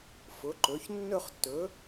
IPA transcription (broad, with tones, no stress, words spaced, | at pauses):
fʊ˩˧ǃɵ˩˧ç nːɵ˥˧χtːɵ˩˥